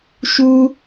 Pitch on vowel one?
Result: high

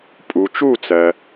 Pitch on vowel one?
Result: low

